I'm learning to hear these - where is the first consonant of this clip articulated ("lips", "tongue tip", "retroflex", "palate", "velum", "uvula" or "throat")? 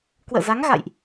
velum